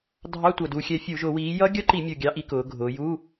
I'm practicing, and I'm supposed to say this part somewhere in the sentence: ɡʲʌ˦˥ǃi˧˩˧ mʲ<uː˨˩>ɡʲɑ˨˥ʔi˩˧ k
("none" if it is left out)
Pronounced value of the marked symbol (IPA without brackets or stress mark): u˨˩